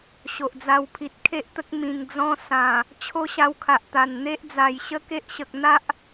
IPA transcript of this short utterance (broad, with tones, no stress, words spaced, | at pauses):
ɕo˨ʔd͡za˧wpʰi˨t̚ kʰe˦ʔt̪ə˦k̚ mĩ˨˩ŋ d͡zɔ̃˧ sã˨˩ | t͡ɕʰo˦ɕa˧wkʰa˨ʔt̪a˨˩n n̪e˦ʔd͡za˨˩jɕə˦ke˦ʔ ɕə˨k̚n̪a˦ʔ